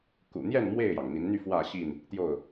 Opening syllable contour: low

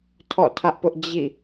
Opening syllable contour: falling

